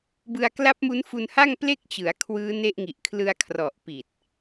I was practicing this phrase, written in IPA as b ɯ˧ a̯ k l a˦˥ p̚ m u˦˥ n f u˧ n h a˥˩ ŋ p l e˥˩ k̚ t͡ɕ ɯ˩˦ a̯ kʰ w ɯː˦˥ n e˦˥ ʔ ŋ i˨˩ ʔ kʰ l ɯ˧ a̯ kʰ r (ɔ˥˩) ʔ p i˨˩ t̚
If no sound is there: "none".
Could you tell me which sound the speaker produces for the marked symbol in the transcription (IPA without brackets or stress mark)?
ɔ˨˩